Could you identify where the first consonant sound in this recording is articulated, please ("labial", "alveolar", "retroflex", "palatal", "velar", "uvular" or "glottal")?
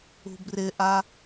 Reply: labial